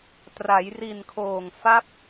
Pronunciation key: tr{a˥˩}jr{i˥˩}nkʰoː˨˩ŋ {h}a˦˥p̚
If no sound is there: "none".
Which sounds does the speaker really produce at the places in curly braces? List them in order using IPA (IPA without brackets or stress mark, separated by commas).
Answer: a˩˦, i˨˩, f